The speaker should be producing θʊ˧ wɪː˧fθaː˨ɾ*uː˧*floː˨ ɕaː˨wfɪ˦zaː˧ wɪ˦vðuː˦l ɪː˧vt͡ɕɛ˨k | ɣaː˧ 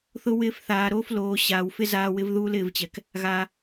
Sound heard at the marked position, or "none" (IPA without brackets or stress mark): oː˧